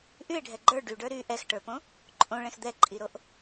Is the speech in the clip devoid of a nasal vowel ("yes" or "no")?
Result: no